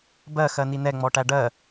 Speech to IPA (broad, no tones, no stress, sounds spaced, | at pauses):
b ɜ x ɜ n i n ɛ ŋ͡m ɔ ʈ æ ɖ ɜ